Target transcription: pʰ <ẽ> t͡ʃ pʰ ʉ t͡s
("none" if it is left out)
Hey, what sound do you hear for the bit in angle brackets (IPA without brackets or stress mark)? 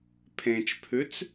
ẽ